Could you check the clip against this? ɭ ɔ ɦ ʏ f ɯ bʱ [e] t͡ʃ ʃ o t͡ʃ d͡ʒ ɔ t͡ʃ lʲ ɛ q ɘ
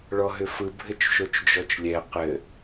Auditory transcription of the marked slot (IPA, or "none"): ɘ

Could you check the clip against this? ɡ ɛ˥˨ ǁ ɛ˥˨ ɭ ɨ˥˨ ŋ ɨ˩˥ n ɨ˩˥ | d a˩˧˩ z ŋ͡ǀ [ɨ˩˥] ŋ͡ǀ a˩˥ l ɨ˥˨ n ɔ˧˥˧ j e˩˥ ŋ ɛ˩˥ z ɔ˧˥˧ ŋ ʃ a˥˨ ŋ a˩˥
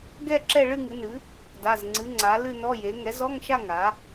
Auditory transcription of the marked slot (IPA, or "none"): ɨ˩˥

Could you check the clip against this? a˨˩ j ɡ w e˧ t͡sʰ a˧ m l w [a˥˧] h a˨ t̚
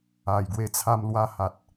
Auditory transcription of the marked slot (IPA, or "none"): a˧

